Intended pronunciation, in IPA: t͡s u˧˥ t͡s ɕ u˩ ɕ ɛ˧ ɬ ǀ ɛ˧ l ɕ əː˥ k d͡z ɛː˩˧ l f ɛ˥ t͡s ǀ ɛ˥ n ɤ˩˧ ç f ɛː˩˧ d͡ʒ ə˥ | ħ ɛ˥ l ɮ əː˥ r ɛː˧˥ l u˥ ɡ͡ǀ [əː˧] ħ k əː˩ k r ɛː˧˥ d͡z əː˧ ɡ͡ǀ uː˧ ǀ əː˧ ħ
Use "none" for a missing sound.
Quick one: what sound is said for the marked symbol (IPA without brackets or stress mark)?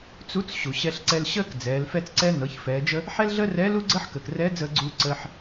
əː˥